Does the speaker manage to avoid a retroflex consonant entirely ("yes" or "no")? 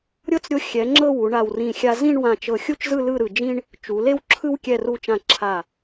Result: no